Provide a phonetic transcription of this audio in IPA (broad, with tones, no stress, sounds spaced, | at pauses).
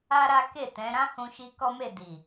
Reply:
a˦ ɾ a˦ k e˦˨ t ɛ̃˨˦ ɾ ã˦ h ũ˧ ʃ i˧ k ɔ˦ m e˦˨ d i˨